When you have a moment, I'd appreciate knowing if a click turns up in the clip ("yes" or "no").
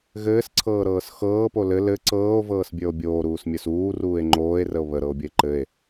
yes